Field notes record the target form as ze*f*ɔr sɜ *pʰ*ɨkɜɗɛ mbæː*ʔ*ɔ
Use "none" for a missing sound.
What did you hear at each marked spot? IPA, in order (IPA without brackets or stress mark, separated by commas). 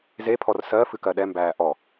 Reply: pʰ, f, ʔ